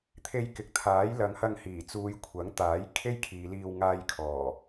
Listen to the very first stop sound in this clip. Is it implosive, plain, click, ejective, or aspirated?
aspirated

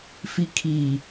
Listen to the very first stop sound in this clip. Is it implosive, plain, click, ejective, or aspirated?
aspirated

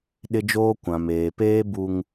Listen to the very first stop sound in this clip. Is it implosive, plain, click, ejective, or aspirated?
implosive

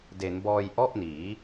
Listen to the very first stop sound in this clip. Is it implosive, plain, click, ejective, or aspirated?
plain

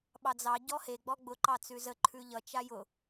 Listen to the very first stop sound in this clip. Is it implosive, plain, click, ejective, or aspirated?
implosive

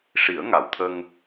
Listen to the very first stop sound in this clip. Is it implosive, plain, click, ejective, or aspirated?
aspirated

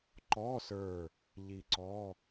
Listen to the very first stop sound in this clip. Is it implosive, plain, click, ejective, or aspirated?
click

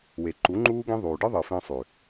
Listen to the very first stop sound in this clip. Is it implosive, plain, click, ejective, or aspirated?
click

